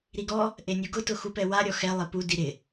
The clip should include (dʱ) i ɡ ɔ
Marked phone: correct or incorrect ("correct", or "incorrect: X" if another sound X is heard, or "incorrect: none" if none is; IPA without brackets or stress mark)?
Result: incorrect: ɾ